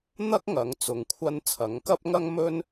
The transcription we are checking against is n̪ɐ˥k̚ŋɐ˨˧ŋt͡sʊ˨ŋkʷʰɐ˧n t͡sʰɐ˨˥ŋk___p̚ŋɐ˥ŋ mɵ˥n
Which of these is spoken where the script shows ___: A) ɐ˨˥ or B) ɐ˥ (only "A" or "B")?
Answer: B